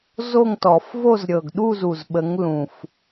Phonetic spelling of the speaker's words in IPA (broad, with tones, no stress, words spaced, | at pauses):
zo˥˧ŋtɔ˨˩˦f vo˥˧z ɾʲɤ˨˩ɡɗu˥˧zu˨˩zɓə˨˦ŋ lũ˨˩f